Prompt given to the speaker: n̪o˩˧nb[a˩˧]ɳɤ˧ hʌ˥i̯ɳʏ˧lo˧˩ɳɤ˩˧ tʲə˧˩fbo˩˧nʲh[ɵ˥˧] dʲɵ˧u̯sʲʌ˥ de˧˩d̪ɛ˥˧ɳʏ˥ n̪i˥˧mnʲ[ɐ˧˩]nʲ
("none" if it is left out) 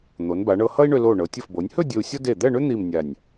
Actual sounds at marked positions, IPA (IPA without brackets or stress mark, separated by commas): a˩˧, ɵ˥˧, a˧˩